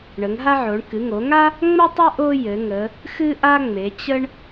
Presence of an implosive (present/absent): absent